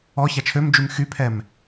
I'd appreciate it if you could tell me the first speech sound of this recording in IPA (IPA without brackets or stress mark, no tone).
ɔ